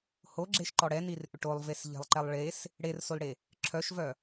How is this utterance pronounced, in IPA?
h o ɡ͡ǁ e ʃ ǃ ɔ ɽ ɛ n i r ʔ ʏ ʈ o lˠ v e s ʎ ɛ̤ lˠ ǃ ɛ lˠ ɭ e s | ɽ e r s o l ɽ e | ǁʰ œ ʃ v œ

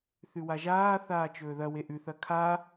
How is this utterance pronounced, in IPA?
θ ʉ w a ʒ aː θ aː t͡ʃ ɵː ð ɐ w e ʔ ʉ θ ɐ kʰ a

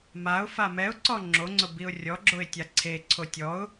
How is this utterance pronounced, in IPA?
m a ʊ̯ f a m ɛ ʊ̯ ǀ ɔ ŋ͡ǁ o ŋ͡ǀ ʊ b i ʊ̯ rʲ ɔ ɡ͡ǁ o ɪ̯ tʲ a ǀʰ e ǀʰ o tʲ ɔ ʊ̯

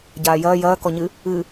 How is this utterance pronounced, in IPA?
ɟ aː j ɐː j ɐː k ɔ ɲ ɨ | ɨː

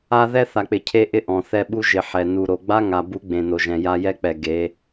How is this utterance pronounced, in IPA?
a˦ ð ɛ˦ θ a˨ k͡p ɪ˨ cʰ e˧ ʔ ɪ˦ ʔ ɔ̃˨ θ ɛ˧ ɓ u˧ ʒ ɪ˨ ħ ɛ˨ n u˨ ɾ o˨ ɡ͡b a˦ ŋ a˨ b u˨˦ ɡ͡b ẽ˨ n o˨ ʒ ɛ̃˨ j a˧ j ɛ˦ k͡p ɛ˨ ɡ e˨˦

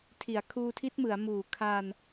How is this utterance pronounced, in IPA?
tʰ i˩˦ a̯ kʰ uː˧ tʰ i˦˥ t̚ m ɯ˩˦ a̯ m uː˨˩ kʰ a˧ n

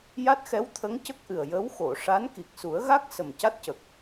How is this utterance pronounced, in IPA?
j a˦˥ t̚ x ɛ˧˥ w t̪ʰ ə˧˥ ŋ c ə˦˥ k̚ ʔ ɨ˨˩ ə̯ j ə˧˥ w x o˨˩˨ ʂ a˧˥ n k i˨˩ k̚ s u˨˩˦ ə̯ ɣ a˦˥ k̚ s ə˨˩ m c a˦˥ t̚ c ə˨˩ k̚

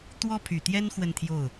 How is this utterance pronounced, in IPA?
t̪ w ɔ˥ pʰ y˨˩ t̪ j ɛ˥ n x w ə˥˧ n t̪ʰ j o˥˩ ʊ̯

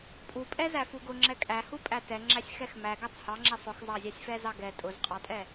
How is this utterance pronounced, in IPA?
pʼ u pʼ ɛ z æ f u ɡ ʊ ŋ͡ǁ ɛ kʼ æ h u pʼ æ t ɛ ŋ͡ǁ æ sʲ x ɛ x m æ ɡ æ tˤ h ɑ ŋ͡ǁ ɛ sˤ ʊ x zˤ ɑ zʲ ɑ sʲ f ɛ z ɑ ɡ ɛ tʼ ʊ z qʼ ɑ tʼ ɛ

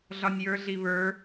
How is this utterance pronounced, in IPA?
ɮ ɒ nʲ j ə˞ ɮ i β ə˞

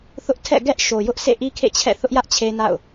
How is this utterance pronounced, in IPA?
θ ʊ˦ ʔ tʰ ɛ̰˦˨ ɡ ɛ˦ ʔ ʃ o˨ j ʊ˦ ʔ sʰ ḛ˦˨ ʔ i˦ kʰ ḛ˦˨ t͡ɕʰ ɛ̰˦˨ θ ʊ˦ ʔ j ä˦ ʔ t͡ɕʰ e˦ n a̰˦˨ ʊ̯

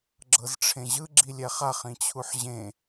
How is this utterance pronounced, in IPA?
ɡ͡ǁ ɤ z ʈ͡ʂʰ ẽ ʑ ɯ ɡ͡ǁ i lʲ ɛ χ a χ ĩ t͡ɕʰ u ħ ʑ ẽ

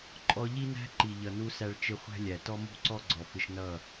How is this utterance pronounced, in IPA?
ǃʼ ɔ˧ ʎ i˦ n æ̤˦ ǃ i˨ ʎ ʌ˨ n u˧ s æ˧ ɭ t͡ʃ ɪ˧ χʷ æ̤˦ lʲ æ˨ t ɔ˦ m ṳ˦˨ ǀ ɔ˦ ɡ͡ǀ ɔ˨ f ɪ˧ ʃ n ʌ˦˨

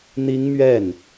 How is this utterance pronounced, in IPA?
n̪ i˥ ŋ m ɥ ɛ˥˩ n

